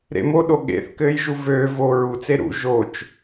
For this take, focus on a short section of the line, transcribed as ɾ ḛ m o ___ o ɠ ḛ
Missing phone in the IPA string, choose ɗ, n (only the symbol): ɗ